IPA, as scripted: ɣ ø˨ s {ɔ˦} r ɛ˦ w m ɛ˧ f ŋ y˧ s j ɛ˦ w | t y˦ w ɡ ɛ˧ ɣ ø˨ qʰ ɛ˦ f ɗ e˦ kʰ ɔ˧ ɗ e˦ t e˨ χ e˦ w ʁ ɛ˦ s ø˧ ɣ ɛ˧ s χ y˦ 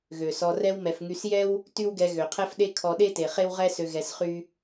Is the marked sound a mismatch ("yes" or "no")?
yes